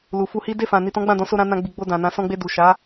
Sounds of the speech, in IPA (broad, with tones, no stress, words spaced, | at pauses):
lu˨fu˧hi˦ de˦˨fã˨ ni˨tɔ̃˨˦ɡ͡bã˦˨dɔ̃˨˦ so˧ɾã˧ nã˧ɡ͡bi˨ɡ͡bo˧ dã˨nã˨˦ sɔ̃˧ɡ͡be˧du˨ʃa˨˦